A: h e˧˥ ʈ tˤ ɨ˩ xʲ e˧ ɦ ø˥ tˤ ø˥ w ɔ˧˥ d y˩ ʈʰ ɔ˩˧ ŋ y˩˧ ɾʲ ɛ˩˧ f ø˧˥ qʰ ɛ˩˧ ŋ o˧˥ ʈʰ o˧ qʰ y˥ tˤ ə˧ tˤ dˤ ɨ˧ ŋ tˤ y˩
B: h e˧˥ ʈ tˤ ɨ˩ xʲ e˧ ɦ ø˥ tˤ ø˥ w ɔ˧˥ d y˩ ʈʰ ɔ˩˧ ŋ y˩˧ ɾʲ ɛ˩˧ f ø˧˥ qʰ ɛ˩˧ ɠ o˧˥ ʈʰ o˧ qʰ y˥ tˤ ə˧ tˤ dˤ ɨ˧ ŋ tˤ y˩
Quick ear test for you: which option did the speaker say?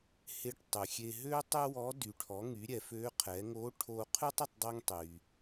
A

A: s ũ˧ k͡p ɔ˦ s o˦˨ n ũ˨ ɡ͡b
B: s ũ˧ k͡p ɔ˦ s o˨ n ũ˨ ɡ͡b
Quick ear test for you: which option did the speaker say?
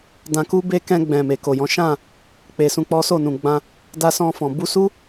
A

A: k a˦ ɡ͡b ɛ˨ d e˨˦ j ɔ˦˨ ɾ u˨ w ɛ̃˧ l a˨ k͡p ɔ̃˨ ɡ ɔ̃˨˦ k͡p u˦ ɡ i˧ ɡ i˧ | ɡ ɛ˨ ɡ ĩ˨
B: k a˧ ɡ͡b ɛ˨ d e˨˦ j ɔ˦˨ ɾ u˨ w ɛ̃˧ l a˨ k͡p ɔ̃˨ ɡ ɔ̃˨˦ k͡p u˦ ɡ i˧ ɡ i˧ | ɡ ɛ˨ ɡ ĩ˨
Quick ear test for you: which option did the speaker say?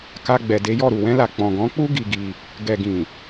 B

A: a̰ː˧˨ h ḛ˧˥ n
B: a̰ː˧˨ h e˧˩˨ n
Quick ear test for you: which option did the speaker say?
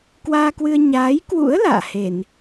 B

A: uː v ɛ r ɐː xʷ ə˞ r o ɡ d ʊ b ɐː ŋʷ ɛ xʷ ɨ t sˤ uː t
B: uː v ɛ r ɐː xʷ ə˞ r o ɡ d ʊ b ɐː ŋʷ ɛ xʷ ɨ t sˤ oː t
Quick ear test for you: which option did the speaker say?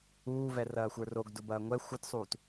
A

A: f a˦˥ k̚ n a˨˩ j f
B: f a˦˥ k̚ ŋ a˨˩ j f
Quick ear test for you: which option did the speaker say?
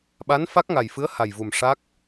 B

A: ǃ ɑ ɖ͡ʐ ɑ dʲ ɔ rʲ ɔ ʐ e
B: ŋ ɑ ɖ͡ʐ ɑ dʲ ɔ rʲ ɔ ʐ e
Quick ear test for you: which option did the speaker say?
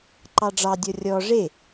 A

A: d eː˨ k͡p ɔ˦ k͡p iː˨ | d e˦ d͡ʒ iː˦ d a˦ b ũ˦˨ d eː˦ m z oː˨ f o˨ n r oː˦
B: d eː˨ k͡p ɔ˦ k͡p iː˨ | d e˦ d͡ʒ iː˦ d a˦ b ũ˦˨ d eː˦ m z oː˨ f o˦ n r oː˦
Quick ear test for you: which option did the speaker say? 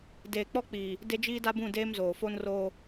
B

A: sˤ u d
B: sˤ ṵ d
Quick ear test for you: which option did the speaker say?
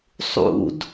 B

